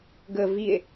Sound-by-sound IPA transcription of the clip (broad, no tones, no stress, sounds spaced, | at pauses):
ɡ ə v i e̯